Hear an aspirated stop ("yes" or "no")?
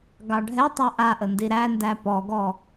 no